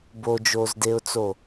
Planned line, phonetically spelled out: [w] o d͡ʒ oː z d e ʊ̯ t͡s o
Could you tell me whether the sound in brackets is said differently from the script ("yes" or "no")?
yes